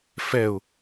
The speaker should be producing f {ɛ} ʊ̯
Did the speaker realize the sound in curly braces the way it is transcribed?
yes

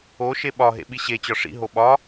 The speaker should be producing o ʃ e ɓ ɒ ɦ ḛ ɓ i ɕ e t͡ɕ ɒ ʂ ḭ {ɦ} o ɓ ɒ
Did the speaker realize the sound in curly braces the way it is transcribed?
yes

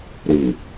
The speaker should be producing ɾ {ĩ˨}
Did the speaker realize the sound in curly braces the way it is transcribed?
no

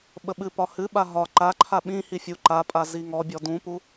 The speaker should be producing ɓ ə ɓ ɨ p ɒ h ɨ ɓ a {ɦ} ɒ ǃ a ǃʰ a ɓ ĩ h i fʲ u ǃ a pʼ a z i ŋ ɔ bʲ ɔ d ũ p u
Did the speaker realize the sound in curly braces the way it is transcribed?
yes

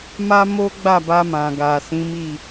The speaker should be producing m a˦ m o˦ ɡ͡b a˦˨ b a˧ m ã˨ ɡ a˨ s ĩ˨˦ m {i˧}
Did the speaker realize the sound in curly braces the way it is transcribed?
no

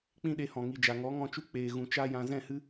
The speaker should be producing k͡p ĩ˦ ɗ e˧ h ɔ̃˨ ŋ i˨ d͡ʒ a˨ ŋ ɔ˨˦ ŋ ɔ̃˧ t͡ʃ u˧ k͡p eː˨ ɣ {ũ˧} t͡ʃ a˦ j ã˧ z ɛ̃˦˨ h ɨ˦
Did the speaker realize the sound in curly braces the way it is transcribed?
no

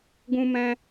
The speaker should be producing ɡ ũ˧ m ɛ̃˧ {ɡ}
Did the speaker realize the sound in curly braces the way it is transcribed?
no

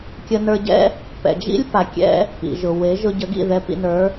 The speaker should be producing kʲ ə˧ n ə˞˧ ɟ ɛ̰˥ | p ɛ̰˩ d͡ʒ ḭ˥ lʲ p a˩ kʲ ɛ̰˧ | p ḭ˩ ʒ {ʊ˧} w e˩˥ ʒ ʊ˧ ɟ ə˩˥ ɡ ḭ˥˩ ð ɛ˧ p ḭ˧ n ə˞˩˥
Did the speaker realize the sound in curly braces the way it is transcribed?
no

